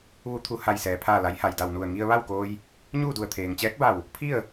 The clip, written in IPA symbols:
ʋu˧t̪ʰu˧˩ ha˧˩jsɛː˩pʰaː˧˩ la˩˧j ha˩jda˧˩wnu˧˩ə̯ ŋi˧ə̯ʋa˥˨wkoː˧j | ɲuː˥˨du˧˩ə̯t̪ʰeː˩ŋ t͡ɕɛː˧˥k̚ba˧˩w | pʰi˥˨ə̯

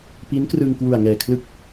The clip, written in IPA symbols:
pi˦˥nkrɯ˧ŋ kwu˨˩a̯ŋɛː˨˩kʰlɯ˦˥k̚

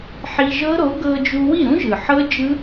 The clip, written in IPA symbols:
ħi˧ʒɤ˦˥ɾo˨˥ ɡɤ˧d͡ʒu˧wi˥˨ ɾũ˦˥ʒɯ˩ ħɤ˦˥d͡ʒɯ˦˥

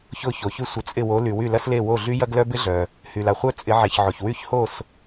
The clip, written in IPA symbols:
çʊ˧˩ço˩çy˧˩ sʷə˩˧t͡sʼɪ˧˩wo˩˧ ly˩wy˧˩lɐ˧sle˧˩ wo˧˩ɮy˧ jɐ˧ɡlœ˧ bɪ˧ɮœ˩ | hy˩la˩χʷœ˧ t͡sʼɪ˩˧ʕe˩ç ʕo˩ç wy˧˩çho˧˩s

